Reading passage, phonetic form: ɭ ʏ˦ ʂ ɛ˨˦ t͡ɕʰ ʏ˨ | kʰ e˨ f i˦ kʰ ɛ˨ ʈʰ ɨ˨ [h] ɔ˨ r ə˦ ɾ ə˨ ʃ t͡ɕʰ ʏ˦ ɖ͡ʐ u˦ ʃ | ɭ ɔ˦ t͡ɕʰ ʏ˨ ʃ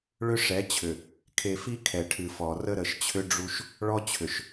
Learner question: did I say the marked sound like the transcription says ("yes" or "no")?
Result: no